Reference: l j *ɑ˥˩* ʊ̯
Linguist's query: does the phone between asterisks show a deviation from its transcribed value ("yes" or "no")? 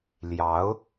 yes